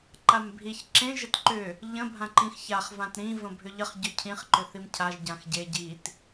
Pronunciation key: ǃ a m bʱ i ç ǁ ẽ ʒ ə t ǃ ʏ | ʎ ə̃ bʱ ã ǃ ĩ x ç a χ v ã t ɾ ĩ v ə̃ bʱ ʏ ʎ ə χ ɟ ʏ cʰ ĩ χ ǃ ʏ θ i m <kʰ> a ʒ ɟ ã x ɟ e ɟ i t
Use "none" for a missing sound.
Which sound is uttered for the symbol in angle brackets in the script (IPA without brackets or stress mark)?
cʰ